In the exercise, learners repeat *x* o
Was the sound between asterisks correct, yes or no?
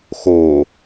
yes